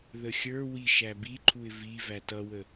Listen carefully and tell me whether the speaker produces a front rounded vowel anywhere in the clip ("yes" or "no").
no